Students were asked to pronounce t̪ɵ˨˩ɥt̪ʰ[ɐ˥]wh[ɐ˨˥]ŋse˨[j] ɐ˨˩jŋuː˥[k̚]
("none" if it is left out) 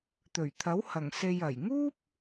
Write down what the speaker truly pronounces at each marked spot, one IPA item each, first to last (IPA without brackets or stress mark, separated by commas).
ɐ˨˥, ɐ˨˩, j, p̚